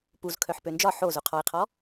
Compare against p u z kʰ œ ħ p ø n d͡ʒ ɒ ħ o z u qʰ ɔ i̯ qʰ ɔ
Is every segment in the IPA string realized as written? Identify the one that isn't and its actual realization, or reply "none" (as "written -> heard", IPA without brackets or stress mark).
none